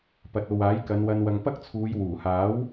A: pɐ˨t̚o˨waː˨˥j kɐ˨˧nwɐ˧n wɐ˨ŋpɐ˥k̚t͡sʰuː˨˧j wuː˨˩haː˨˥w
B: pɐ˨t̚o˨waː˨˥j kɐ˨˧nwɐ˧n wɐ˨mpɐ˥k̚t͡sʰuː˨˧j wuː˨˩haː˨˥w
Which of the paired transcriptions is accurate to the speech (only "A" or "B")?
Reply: A